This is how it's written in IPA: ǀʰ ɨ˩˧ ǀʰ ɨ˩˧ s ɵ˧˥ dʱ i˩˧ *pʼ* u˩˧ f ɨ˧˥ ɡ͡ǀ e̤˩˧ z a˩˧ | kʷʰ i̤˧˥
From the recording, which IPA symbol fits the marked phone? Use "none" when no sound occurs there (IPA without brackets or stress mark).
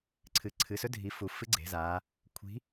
f